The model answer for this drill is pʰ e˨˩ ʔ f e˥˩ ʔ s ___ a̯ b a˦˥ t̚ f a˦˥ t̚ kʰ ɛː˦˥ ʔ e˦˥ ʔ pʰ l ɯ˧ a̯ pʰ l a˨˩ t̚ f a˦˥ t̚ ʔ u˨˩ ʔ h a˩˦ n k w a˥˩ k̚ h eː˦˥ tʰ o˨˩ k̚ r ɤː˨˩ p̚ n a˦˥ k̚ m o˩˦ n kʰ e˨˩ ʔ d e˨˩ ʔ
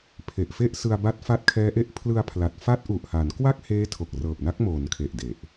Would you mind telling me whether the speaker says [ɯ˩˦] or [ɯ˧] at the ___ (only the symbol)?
ɯ˧